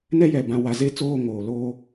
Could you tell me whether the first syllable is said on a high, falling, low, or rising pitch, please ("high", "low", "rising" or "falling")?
high